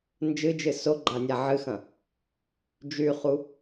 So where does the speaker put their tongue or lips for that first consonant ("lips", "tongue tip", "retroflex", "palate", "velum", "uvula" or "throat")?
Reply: tongue tip